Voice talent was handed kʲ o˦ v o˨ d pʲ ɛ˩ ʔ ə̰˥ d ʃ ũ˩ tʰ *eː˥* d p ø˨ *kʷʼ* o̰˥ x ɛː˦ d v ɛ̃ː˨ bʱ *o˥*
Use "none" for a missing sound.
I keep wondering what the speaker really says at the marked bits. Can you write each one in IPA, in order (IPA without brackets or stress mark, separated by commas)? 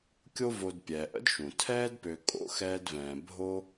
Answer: ɛː˥, kʼ, o˥